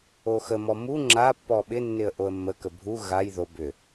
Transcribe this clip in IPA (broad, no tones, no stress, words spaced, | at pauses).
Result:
oxəmɔ mu ŋ͡ǁapːɔ ɓɪnːɪə̯ ʔoə̯mːəkə bʱu ɣaj ðo bʏ